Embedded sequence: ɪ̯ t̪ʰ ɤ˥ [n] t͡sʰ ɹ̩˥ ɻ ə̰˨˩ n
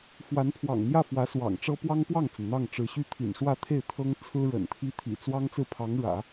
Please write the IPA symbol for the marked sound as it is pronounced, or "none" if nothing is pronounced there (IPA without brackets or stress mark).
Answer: ŋ